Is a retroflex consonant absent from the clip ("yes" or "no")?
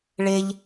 no